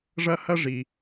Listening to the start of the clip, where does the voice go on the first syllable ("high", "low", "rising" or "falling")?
high